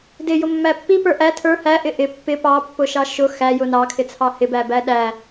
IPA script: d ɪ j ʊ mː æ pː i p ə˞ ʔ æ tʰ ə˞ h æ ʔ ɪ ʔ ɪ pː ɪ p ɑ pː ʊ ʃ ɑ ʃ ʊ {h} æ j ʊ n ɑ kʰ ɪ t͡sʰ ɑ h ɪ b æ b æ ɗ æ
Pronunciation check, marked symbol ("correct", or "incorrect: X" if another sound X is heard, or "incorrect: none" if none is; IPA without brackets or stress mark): incorrect: x